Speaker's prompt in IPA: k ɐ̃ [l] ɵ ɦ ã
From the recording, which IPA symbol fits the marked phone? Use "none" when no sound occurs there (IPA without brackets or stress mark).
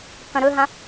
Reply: ɾ